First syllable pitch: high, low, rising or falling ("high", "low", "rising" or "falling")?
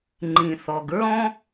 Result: low